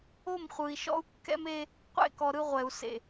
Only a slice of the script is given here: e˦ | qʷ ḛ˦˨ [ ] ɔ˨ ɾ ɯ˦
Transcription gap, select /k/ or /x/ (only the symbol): k